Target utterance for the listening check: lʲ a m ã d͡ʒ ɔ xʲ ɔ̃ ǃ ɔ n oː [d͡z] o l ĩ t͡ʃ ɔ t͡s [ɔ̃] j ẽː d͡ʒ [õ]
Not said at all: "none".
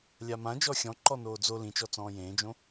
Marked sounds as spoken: d͡z, ɔ̃ː, õ

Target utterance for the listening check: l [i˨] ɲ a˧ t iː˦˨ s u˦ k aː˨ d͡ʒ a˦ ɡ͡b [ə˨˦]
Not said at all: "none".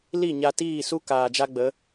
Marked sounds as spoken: i˦˨, ə˨˦

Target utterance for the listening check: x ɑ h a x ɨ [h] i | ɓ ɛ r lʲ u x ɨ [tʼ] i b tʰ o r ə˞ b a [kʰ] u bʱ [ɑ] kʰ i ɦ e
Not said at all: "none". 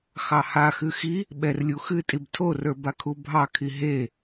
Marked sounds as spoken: x, tʼ, kʰ, ɑ

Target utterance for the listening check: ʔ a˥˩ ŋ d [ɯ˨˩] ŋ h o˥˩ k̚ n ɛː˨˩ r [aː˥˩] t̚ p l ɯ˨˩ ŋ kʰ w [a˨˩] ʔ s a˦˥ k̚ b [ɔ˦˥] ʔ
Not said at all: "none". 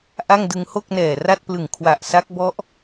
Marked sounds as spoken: ɯ˧, a˥˩, a˨˩, ɔ˦˥

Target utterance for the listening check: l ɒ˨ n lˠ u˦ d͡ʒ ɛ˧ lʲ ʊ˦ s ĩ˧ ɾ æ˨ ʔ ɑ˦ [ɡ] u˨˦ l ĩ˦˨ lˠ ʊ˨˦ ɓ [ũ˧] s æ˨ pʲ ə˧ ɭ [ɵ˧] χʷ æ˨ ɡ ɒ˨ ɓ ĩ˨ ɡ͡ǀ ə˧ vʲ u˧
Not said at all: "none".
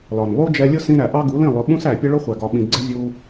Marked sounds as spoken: ɡ, ũ˧, ʊ˧

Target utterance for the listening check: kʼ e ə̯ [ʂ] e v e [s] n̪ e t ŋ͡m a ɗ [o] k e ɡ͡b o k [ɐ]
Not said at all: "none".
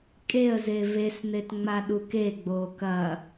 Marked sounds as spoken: z, s, u, ɐ

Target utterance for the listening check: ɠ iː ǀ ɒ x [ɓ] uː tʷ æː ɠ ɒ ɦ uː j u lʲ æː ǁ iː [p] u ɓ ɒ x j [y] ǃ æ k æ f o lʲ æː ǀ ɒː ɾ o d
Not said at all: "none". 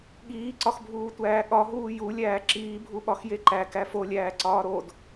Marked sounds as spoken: bʱ, bʱ, e

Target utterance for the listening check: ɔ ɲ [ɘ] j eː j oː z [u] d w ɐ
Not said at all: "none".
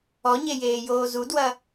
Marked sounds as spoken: e, u

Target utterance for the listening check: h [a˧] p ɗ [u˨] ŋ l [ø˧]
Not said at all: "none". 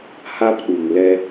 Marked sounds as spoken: a˧, u˨, ɛ˧

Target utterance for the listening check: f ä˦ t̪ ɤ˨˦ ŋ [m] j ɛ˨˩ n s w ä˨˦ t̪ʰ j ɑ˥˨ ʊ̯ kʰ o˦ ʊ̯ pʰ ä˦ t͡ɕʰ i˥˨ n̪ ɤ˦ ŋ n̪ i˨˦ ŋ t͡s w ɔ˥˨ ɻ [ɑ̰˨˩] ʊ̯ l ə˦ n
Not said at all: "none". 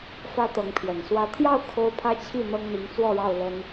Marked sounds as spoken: pʰ, ɑ˥˨

